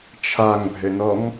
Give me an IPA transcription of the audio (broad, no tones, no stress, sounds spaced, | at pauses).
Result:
t͡ʃʰ a ŋ bʱ ɘ n ɔ ŋ